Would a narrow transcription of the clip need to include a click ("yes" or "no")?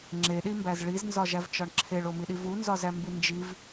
yes